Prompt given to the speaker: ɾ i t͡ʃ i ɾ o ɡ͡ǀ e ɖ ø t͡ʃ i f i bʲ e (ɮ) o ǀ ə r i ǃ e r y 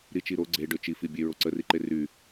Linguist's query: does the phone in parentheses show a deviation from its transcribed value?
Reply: yes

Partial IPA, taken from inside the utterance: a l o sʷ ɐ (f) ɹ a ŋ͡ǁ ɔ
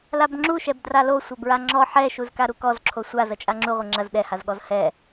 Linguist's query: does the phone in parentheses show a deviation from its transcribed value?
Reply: yes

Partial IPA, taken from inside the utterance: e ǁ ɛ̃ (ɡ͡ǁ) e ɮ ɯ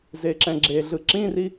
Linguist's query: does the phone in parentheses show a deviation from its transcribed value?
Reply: no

